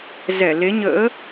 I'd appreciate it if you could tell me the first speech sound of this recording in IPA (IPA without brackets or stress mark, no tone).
z